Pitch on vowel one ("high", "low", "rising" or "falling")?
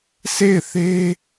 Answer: falling